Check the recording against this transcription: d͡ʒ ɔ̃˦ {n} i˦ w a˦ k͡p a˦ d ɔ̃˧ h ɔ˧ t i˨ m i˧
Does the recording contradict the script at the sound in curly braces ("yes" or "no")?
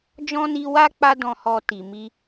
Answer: no